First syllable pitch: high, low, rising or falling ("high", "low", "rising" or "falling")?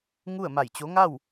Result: falling